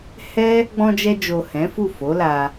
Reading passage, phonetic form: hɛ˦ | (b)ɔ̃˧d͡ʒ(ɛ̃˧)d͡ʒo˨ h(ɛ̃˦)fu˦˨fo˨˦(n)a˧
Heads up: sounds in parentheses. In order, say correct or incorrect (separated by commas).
incorrect, incorrect, incorrect, incorrect